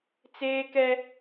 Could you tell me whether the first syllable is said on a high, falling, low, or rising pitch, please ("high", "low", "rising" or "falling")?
high